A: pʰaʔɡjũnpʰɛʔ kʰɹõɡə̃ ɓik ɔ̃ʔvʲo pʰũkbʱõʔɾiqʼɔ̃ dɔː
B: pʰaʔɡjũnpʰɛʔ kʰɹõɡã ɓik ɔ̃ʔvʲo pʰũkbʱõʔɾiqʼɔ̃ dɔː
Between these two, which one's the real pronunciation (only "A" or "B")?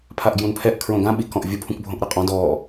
B